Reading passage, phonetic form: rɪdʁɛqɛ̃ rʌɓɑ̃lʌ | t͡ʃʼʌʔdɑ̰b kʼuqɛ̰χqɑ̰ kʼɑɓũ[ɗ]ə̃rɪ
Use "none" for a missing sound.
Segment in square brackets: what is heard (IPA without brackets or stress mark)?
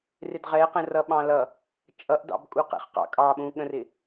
ɠ